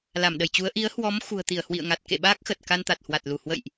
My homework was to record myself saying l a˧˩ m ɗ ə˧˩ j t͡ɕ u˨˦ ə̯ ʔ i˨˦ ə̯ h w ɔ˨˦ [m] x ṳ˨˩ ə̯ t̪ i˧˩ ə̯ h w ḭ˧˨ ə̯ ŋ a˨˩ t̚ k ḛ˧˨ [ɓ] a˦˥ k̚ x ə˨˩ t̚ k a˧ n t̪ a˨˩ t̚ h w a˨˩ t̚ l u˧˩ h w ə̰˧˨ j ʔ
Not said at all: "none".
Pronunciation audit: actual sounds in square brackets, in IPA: m, ɓ

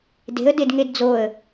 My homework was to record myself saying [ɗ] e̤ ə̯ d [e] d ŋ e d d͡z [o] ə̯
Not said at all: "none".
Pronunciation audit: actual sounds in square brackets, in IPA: d, e, o

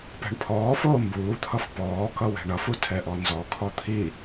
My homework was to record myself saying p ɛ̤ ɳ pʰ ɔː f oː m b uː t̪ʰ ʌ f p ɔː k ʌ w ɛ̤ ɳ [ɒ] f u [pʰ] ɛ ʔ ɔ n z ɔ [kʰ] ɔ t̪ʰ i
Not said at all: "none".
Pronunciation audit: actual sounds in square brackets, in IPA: ʌ, tʰ, kʰ

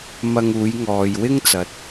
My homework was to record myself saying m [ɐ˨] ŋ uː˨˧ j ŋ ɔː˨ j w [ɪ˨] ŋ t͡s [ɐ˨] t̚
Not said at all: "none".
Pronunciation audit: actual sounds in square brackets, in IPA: ɐ˧, ɪ˥, ɐ˨

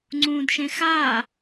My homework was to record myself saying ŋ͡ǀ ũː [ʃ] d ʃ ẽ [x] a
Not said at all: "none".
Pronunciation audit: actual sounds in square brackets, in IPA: none, x

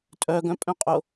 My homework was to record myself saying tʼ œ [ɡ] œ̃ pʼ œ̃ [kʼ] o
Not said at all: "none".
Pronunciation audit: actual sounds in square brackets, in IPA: ɡ, qʼ

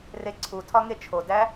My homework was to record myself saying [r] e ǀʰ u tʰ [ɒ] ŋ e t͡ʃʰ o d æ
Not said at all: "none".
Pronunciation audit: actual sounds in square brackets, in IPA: r, ɒ

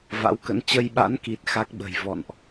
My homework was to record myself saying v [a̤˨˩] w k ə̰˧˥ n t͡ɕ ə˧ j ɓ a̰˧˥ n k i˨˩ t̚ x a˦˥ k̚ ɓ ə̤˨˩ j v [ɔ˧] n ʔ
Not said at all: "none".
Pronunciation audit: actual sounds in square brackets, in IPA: a̰˧˥, ɔ̰˧˨

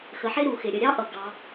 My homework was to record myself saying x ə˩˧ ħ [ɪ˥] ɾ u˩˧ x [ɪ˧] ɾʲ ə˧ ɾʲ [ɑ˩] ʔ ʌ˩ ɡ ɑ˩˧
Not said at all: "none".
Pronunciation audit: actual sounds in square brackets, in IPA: ɪ˥, ɪ˩, ɑ˥

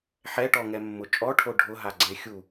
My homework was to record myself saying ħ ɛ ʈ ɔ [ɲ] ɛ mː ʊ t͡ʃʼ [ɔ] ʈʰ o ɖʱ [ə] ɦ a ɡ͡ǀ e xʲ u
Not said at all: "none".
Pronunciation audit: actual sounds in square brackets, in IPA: ŋ, ɔ, ʊ

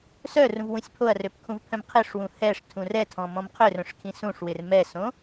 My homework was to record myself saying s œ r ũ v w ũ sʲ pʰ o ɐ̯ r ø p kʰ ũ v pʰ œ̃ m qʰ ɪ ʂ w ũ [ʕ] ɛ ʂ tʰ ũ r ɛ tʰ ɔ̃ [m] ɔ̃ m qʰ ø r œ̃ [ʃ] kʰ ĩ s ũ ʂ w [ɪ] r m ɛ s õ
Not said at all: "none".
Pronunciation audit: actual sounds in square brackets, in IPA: h, m, ʂ, ɪ

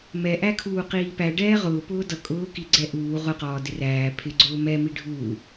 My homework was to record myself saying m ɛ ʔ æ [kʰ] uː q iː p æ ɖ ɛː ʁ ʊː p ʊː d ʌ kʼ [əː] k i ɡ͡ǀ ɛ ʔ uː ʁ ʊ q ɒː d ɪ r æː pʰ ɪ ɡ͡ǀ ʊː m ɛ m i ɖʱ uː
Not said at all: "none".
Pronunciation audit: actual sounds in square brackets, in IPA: kʰ, ʊː

